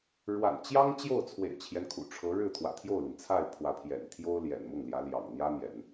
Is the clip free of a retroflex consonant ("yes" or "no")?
no